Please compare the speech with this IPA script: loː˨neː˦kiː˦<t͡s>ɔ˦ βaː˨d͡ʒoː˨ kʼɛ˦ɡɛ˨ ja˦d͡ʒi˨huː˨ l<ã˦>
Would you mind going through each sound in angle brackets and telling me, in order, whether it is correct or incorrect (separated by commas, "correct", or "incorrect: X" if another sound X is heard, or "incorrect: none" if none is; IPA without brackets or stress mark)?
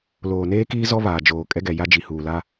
incorrect: z, incorrect: a˦